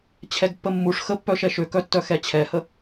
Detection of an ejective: absent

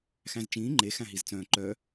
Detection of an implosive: absent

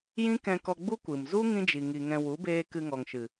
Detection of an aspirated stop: absent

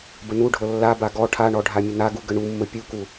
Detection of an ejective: absent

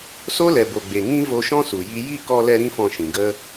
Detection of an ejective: absent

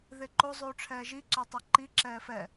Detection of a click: present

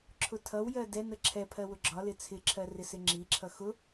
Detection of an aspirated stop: present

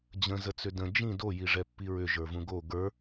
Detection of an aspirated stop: absent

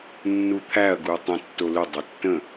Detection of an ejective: absent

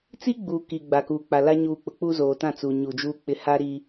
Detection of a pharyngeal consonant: absent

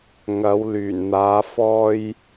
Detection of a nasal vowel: absent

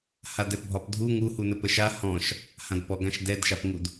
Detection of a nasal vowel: present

